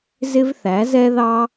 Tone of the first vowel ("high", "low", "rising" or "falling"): high